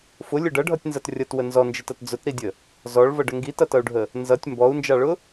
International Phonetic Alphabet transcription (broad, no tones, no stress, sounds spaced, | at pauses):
f ʊ lʲ ʊ ɖ ʌ ɖʱ ʌ tʲ n z ʌ t rʲ ʌ t w ə n z ɔ n d͡ʒ ə t ʌ t d͡z ʊ t ɾ i dʲ ə | z ɔ ɭ v ʌ ɖ ə ŋ ɡ i t ʌ t ʌ u̯ ɖʱ ə | n z ʌ tʲ m b ɔ u̯ n d͡ʒ ɑ ɭ ʊ